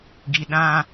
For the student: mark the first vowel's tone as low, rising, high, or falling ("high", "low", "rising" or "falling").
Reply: low